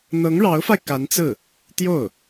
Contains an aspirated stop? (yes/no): no